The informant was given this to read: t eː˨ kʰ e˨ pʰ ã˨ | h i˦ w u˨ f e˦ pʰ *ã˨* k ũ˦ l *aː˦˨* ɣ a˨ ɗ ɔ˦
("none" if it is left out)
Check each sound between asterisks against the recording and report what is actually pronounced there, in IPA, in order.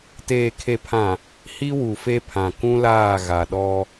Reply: ã˨, aː˦˨

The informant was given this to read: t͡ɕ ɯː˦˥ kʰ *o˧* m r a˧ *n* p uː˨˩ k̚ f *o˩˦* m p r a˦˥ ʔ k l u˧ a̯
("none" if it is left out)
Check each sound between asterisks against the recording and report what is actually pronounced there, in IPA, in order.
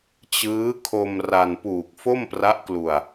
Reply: o˧, n, o˥˩

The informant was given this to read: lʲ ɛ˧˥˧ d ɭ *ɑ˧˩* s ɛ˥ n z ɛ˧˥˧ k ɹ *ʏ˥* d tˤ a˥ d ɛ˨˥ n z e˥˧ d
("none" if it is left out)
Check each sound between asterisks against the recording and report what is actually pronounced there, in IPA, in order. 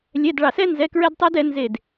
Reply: ɑ˧˩, ɛ˥

